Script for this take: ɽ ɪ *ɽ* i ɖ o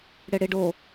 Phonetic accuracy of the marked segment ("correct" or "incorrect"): correct